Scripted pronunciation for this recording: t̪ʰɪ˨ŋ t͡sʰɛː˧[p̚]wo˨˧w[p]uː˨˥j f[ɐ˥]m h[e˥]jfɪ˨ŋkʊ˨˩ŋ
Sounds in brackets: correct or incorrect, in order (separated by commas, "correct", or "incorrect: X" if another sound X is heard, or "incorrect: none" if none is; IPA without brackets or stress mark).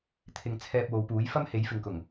correct, correct, correct, incorrect: e˨˥